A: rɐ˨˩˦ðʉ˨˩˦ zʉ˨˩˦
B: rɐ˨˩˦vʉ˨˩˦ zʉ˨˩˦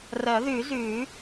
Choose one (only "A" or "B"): A